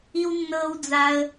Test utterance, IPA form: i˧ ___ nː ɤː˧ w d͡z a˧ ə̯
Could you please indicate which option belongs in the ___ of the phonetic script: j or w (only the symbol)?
w